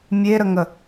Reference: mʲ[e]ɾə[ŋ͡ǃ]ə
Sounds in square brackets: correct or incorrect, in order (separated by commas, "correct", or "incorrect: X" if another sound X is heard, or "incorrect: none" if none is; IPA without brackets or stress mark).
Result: correct, incorrect: ŋ